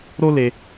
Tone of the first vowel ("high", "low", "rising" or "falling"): high